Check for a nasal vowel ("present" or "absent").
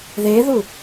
absent